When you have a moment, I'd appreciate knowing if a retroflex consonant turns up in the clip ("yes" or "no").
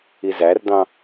no